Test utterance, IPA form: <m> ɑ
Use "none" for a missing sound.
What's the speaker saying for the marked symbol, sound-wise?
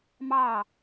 m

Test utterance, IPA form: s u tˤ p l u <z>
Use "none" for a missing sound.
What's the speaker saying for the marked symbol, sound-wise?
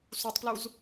z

